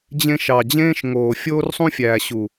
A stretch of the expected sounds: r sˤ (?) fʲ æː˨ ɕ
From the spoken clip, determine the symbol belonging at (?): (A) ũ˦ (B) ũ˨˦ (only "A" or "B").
A